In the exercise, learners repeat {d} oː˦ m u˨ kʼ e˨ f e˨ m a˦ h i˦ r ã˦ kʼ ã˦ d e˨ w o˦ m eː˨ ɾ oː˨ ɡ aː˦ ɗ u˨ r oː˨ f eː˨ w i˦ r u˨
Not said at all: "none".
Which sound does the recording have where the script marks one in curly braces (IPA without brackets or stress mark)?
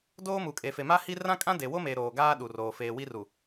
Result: d